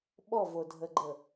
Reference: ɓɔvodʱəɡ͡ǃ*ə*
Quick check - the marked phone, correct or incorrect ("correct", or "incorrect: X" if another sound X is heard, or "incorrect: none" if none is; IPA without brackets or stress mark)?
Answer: correct